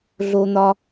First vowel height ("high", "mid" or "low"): mid